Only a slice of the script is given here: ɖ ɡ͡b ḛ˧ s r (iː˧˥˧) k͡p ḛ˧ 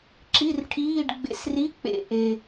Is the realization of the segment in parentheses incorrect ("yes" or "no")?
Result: yes